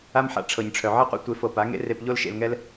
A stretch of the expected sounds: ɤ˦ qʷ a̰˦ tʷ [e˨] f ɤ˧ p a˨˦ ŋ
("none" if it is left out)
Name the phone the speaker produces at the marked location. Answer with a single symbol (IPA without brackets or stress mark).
e˧